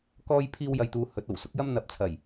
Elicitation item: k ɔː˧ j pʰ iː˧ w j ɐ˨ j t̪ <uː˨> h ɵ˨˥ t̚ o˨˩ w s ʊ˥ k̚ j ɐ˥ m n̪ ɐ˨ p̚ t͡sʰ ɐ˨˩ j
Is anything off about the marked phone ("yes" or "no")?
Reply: no